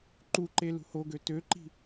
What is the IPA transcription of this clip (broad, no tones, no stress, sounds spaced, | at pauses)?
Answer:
ǃ u ǃ e l ṳ h o ɡ ø t ø ǃ i̤